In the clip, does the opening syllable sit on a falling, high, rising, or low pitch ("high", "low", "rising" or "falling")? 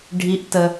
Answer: rising